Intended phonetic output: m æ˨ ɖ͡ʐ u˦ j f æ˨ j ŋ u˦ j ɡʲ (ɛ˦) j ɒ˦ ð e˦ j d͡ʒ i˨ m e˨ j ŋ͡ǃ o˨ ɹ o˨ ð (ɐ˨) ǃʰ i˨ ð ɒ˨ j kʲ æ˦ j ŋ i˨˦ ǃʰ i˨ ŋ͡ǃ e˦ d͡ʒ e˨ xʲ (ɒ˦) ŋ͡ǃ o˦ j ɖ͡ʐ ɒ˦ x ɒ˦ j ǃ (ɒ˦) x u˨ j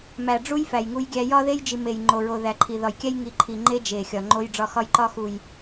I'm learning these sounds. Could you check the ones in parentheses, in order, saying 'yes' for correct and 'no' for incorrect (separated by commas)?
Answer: no, no, no, yes